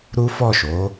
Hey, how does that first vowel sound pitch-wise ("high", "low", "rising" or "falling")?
high